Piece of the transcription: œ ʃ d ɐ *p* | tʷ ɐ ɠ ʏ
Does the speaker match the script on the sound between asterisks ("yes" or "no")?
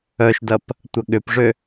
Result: yes